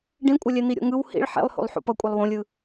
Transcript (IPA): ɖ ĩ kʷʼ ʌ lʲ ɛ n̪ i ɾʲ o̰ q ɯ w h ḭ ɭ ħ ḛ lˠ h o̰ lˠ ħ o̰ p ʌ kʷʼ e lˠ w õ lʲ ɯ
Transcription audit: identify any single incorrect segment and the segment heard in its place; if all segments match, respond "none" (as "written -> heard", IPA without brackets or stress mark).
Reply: q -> ŋ